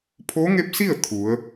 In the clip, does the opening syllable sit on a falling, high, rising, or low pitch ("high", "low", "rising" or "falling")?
rising